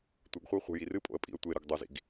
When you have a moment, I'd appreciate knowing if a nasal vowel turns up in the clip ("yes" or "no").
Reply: no